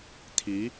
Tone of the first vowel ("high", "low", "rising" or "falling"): rising